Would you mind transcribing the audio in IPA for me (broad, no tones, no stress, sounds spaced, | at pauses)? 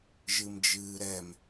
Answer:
ʒ ɨ m d͡ʒ ɨː ɾ ɛ m